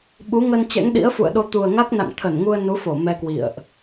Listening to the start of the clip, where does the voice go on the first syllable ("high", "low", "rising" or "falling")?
rising